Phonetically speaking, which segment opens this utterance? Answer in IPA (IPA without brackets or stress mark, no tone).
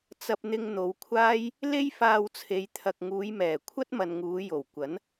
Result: t͡s